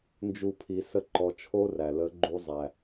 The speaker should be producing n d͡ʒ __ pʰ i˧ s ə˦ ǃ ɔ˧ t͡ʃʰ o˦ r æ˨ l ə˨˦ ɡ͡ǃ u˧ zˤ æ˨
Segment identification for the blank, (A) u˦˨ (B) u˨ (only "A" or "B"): A